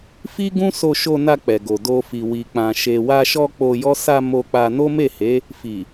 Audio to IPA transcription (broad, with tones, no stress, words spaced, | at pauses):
fi˦ɡũ˦ so˧ʃo˧na˧ k͡pɛ˨ɡo˨ do˧fi˨ wi˨k͡pã˨ ʃe˨wa˧ʃɔ˧ k͡po˧jɔ˦ sa˧ mo˧k͡pa˧ no˦me˦˨he˨˦ | fi˨